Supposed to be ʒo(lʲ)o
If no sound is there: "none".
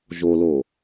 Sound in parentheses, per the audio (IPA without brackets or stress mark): l